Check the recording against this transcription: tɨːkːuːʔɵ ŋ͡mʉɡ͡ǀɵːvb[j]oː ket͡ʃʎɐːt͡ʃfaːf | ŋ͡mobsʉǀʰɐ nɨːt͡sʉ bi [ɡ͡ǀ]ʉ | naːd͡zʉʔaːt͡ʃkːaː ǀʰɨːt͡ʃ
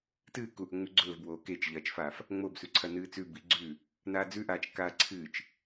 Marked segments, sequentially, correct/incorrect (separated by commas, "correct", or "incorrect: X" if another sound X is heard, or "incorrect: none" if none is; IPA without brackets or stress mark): incorrect: w, correct